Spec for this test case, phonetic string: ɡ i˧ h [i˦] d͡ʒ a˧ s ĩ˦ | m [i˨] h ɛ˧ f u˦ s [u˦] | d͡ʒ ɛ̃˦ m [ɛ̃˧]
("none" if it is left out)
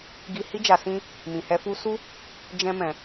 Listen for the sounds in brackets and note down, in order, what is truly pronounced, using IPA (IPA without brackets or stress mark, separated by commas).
i˦, ĩ˨, u˦, ɛ̃˧